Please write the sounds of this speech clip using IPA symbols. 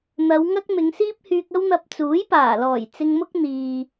n̪ɐ˨˧wŋɐ˥k̚ mɪ˨˧ŋsiː˥p̚hyː˧k̚ ɐ˧wn̪ɐ˨p̚ t͡suː˨˥jpaː˨˩lɔː˨˩j t͡sɪ˧ŋmʊ˥k̚ n̪iː˨

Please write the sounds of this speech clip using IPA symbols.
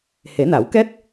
he˨˩˦na˨˩˦wkɛ˦˥t̚

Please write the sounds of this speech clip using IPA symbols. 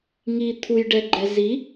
ŋi t̪ʰujɖɛɡ͡ǃɛ zi

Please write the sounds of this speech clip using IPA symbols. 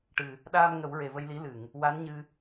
ʈɨ˨˩ | ɗaː˧m ŋə˨˩˦wɹe˨˩və˧jli˧˥ lɨ˨˩˨ŋ | wa˧˥nɲɨ˧

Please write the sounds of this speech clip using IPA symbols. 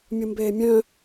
mʲumbeːmʲœ̃

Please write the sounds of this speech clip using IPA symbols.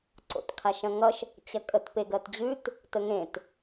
ǀo̰tkʰaʃɐ̃ŋʌʃ | t͡ɕɐkʼət peɡɜtd͡ʑʉt | təŋẽt

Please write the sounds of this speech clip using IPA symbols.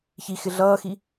çixɪ ɮʌːxi

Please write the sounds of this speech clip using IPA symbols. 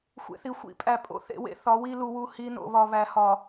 xʷḛ˨θi˨xʷḭ˦ pʼæ˨pʼo̰˦ θḛ˨wḛ˦ θɒ˨˦wi˦lu˨wu˦˨ hi˦no̰˨βɒ˨ βæ˨hɒ˨

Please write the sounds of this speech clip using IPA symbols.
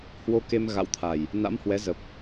hwo˧ke˧m ɣa̰˧˨wt̪ʰa˨˩j | na̰˧˥mhwɛ˨˦zə˨˩p̚

